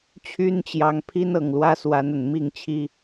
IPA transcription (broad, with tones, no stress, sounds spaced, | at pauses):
t͡ɕʰ y˦ n t͡ɕ j ɑ˨˦ ŋ pʰ i˦ n ɤ˨˩ ŋ l w ä˦ s w a˨˦ n ə˨˩ n m i˥˨ ŋ t͡ɕʰ i˦